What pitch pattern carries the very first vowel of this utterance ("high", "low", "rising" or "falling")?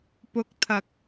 low